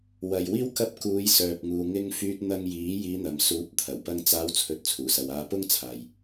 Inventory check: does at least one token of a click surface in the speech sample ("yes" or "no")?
no